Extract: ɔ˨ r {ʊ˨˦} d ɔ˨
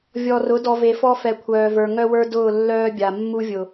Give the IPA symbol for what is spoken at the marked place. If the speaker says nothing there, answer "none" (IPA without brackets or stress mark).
ʊ˨˦